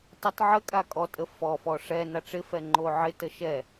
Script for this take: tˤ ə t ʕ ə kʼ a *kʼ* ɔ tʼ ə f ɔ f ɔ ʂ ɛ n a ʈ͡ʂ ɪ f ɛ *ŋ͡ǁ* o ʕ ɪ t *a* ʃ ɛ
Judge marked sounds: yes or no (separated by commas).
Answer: yes, no, no